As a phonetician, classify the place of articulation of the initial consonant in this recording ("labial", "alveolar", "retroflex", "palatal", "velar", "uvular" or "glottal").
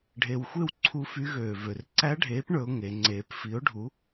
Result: retroflex